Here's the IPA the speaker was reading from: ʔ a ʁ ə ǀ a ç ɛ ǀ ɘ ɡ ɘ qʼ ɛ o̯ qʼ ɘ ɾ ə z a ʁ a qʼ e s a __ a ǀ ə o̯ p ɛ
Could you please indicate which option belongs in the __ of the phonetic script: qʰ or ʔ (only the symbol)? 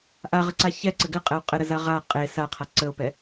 qʰ